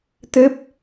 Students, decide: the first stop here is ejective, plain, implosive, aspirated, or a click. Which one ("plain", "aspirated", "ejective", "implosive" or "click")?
plain